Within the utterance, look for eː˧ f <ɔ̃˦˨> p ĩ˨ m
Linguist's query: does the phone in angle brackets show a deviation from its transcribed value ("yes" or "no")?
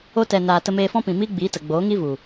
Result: yes